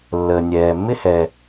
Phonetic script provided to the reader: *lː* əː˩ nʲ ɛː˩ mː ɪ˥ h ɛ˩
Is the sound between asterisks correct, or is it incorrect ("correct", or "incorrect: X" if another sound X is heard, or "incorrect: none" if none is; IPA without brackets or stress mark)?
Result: correct